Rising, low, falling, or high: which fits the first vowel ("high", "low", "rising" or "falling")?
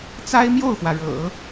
high